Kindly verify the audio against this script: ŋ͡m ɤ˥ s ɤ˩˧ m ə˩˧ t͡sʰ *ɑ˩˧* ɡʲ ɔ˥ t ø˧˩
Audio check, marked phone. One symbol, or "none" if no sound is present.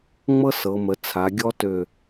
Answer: a˩˧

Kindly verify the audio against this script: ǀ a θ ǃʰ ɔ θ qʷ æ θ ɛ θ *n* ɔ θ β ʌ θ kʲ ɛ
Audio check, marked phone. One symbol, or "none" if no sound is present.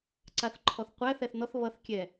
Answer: n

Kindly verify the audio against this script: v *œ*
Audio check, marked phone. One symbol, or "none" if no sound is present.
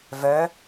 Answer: œ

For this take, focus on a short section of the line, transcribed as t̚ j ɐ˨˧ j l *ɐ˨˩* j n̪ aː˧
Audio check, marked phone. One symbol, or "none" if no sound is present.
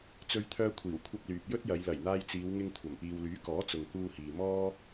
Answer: ɐ˨˩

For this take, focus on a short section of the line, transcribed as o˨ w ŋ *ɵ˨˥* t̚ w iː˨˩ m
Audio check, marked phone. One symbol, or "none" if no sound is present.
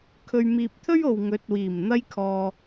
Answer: ɵ˨˥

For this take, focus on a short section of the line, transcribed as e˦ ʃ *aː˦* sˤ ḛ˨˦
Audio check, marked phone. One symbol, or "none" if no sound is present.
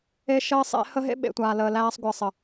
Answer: əː˦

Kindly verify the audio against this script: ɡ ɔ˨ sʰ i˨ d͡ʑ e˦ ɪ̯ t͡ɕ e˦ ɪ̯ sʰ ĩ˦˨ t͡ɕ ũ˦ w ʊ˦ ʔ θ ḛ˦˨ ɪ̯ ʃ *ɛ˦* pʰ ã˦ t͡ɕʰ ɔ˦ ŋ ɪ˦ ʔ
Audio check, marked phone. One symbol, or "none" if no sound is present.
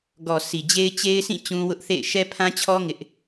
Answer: ɛ˦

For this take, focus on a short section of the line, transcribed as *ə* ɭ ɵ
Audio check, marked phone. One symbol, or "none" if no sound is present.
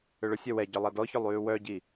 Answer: ø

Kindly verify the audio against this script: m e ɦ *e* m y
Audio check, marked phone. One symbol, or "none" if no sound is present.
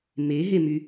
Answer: e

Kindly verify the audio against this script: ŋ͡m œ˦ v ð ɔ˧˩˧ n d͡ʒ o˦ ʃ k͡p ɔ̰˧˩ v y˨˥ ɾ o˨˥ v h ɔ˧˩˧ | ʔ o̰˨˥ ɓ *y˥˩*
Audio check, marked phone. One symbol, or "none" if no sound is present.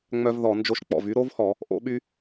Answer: y˦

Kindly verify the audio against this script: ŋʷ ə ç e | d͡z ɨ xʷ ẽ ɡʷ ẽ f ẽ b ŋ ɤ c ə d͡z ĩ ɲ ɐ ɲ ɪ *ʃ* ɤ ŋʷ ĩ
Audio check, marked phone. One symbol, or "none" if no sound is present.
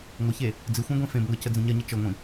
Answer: t͡ʃ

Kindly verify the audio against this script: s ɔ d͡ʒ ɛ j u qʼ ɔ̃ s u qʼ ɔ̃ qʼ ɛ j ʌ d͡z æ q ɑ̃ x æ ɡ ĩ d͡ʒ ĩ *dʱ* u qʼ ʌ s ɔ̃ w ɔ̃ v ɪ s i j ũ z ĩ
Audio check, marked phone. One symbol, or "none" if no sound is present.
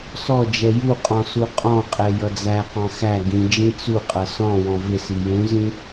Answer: t͡s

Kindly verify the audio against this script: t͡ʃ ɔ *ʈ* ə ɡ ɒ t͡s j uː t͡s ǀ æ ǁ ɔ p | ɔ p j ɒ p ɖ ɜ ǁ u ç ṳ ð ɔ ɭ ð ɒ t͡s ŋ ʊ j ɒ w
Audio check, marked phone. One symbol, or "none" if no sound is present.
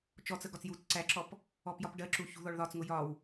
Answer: t͡s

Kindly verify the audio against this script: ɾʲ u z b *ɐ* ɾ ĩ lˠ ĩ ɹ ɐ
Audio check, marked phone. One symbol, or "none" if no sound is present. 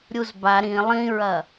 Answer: a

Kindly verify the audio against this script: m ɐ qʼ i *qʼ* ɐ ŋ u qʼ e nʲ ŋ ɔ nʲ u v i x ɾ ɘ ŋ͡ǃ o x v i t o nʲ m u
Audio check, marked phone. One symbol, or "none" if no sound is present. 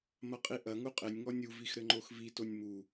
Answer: ʔ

